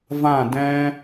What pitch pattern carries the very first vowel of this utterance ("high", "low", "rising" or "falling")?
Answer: falling